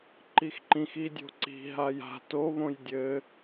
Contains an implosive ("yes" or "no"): no